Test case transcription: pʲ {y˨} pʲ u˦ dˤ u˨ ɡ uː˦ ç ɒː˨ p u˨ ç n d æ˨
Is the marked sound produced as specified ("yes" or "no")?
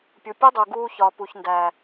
no